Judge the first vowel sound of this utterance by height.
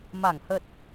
low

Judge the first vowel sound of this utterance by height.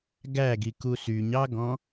low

